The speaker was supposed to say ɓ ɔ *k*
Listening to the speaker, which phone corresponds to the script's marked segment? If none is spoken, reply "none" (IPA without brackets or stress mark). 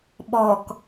k